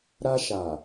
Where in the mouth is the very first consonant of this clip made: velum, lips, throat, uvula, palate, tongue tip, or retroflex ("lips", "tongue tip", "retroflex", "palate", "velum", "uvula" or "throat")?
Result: tongue tip